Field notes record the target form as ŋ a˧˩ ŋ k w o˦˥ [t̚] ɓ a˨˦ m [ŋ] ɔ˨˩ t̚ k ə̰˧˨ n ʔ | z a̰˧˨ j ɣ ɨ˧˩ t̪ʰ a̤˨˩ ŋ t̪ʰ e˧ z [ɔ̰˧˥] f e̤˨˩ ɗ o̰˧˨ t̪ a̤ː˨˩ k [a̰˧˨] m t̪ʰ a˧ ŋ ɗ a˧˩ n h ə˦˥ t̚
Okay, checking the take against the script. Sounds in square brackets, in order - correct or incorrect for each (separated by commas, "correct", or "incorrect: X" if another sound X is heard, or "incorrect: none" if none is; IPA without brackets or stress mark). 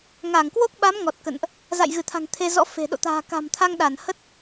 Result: incorrect: k̚, correct, correct, incorrect: a̤˨˩